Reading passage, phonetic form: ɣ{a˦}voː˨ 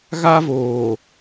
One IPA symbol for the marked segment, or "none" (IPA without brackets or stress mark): a˦